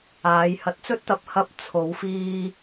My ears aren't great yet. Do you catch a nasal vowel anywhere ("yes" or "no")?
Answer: no